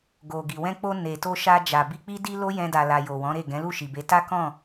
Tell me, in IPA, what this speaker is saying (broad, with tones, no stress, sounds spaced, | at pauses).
ɡ o˨ ɡ i˨ w ɛ̃˧ k͡p o˧ n e˨ t o˧ ʃ a˧ d͡ʒ a˨ b i˧ k͡p i˦ d i˦ l o˦ j ɛ̃˧ d a˨ l a˨ j o˨ w ɔ̃˨˦ ɾ e˦˨ ɡ ɛ̃˨˦ l u˦˨ ʃ i˨ b e˨˦ t a˦ k ɔ̃˦˨